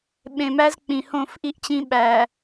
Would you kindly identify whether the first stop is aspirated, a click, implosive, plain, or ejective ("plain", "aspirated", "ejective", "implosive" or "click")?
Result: implosive